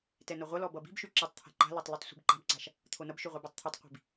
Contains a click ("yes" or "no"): yes